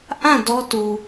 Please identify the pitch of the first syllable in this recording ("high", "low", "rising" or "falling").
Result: falling